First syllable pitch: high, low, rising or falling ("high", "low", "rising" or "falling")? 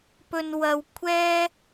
low